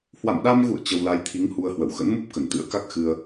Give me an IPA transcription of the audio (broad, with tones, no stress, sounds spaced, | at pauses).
h w a̰˧˨ m ɗ a˧ m ɣ ṵ˧˨ ə̯ t͡ɕ ə˧ w l a˧ j t̪ʰ i˨˦ ŋ h u˧ ə̯ h w ə̰˧˨ w x ə̰˧˥ n m u˦˥ p̚ k ə˧˩ n t̪ ɨ̰˧˥ ə̯ k a˦˥ k̚ x ɨ˧ ə̯